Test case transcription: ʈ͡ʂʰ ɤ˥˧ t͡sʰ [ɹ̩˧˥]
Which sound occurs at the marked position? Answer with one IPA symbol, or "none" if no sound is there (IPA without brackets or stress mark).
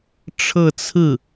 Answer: ɹ̩˥˩